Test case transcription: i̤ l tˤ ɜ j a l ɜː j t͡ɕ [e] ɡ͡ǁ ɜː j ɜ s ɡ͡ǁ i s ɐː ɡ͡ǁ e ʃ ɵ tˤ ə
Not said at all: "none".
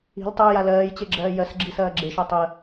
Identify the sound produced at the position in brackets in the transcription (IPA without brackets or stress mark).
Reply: e